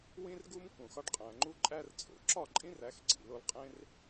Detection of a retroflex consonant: present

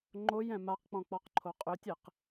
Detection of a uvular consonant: present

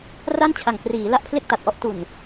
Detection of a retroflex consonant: absent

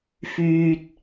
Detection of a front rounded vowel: present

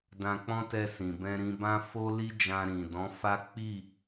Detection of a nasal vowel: present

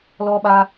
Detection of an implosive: present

